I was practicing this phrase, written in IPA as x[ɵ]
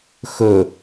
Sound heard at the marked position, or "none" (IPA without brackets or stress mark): ɵ